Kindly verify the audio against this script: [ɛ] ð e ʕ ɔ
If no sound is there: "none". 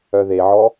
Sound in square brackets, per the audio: œ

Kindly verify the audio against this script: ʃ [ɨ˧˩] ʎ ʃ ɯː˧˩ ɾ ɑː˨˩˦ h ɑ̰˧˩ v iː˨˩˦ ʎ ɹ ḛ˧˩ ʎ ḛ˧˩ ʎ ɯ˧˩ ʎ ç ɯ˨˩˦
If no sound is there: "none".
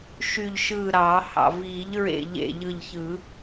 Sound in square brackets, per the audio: y˧˩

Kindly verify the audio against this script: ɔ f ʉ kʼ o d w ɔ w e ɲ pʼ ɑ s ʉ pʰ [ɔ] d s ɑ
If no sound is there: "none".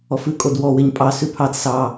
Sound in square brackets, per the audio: ɑ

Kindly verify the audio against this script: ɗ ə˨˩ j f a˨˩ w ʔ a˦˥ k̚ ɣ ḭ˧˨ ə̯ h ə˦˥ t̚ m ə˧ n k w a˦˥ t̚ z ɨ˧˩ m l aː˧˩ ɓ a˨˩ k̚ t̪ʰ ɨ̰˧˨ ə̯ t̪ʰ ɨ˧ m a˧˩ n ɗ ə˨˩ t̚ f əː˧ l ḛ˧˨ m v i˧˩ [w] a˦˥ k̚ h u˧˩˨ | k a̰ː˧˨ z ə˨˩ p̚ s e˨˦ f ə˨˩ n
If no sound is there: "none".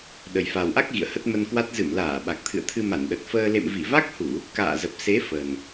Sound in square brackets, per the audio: v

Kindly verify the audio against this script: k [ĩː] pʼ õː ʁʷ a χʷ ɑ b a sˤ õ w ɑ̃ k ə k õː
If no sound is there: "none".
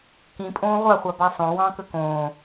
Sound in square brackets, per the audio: ĩ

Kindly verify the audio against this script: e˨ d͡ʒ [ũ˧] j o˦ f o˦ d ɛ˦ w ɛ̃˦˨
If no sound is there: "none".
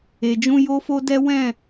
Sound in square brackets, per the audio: ũ˧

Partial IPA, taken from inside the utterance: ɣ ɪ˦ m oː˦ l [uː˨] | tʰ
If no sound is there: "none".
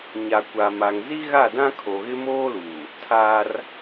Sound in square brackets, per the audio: uː˨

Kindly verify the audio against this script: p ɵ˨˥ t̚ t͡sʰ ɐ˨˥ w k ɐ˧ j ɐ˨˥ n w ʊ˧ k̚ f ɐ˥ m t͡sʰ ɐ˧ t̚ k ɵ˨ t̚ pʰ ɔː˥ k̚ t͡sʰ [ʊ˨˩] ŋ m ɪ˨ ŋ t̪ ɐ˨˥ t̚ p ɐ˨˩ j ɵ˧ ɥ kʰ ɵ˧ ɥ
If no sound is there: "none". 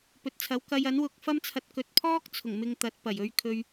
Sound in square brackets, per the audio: ʊ˨˩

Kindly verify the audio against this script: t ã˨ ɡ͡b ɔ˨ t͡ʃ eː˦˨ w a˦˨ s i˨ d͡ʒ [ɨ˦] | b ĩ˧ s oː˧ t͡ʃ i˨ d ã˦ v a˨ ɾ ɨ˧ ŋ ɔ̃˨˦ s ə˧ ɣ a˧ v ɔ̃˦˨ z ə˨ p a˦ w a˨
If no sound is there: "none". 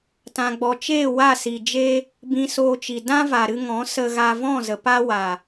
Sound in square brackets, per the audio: e˦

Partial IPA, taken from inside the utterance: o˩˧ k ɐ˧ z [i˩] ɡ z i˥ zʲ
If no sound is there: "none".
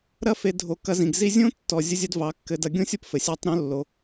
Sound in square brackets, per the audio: ĩ˩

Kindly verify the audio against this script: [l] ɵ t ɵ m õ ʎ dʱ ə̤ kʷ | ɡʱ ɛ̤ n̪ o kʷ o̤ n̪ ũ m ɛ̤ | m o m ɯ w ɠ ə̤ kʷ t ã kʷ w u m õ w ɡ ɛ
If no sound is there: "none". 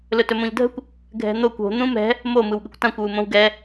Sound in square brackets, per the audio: l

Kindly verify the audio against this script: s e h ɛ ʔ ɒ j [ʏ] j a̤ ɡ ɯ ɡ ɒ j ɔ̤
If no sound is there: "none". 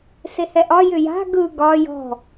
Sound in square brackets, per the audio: ʏ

